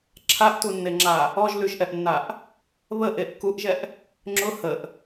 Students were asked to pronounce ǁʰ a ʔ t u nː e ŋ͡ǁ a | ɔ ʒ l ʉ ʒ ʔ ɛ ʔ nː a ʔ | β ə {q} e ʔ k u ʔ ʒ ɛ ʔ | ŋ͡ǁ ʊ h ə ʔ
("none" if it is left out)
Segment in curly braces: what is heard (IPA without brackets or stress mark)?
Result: ʔ